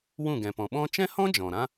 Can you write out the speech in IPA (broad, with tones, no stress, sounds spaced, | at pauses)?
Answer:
w ũ˦˨ ɡ ɛ̃˨ p ɔ̃˨ ɓ ɔ̃˧ t͡ʃ ɛ̃˦ h ɔ̃˦ d͡ʒ ɔ̃˨ ɾ ã˦